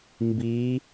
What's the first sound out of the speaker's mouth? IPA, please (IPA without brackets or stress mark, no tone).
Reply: m